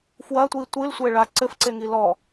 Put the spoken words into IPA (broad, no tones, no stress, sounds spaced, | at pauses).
f w ɐ tʷ i tʷ ɨ l sʷ e ɭ a ǀ ɘ f ǀ e ŋ i l ɔ